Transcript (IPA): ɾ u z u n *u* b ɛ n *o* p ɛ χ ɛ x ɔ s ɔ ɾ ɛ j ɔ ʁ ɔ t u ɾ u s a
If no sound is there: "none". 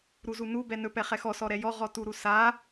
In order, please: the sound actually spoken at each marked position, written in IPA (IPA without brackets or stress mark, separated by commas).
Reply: u, ɵ